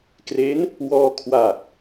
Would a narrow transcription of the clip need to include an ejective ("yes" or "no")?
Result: no